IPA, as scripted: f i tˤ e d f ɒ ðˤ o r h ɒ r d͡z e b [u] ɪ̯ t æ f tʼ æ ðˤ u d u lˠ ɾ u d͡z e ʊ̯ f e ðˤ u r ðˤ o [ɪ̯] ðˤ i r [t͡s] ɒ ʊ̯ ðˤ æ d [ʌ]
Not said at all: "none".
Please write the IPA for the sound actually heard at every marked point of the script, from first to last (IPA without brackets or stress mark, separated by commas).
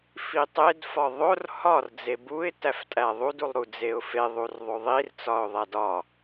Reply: u, none, t͡s, ɒ